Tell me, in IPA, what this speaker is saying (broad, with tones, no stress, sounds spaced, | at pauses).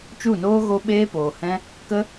t͡ʃ u˦˨ n oː˦ ɣ o˧ ɓ eː˦ p oː˨ h ɛ̃˦ | k ə˦